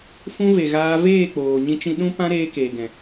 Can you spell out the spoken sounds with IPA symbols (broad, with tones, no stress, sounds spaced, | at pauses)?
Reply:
f ũ˦ v e˨ ɣ aː˧ v eː˦˨ k͡p oː˨ ɲ ĩ˧ t͡ʃ ĩ˧ ɗ ũ˦ p ã˦ ɾ eː˧ k eː˨ ɡ ɛ̃˨